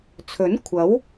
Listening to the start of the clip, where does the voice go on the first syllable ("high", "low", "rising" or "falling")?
rising